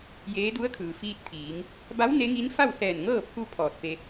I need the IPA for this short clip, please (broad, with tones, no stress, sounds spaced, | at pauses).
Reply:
j eː˧˥ d u˧˥ ə̯ kʰ ɯː˩ f iː˧ t̚ t̪ʰ iː˩˧ ŋ | b a˧˥ w n e˧˥ ŋ i˧˥ n f a˥˨ w s ɛː˧˩ n ŋ ɤː˥˨ pʰ u˧ pʰ ɔː˧˩ t̚ f e˧